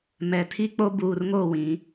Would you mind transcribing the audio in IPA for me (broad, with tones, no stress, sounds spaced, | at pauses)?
m ɛ˨ tʰ i˦ k͡p o˦ b uː˨ r ŋ o˦˨ w ĩ˨˦